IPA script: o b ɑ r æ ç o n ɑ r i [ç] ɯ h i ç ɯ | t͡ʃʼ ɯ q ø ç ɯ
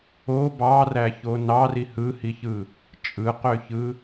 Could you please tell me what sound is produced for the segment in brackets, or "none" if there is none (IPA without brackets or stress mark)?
h